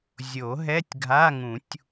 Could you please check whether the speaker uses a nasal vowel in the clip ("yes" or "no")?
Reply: yes